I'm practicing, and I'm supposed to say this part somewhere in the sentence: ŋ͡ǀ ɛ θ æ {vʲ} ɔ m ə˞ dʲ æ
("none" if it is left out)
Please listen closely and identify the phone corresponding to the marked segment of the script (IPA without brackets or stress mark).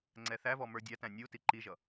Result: v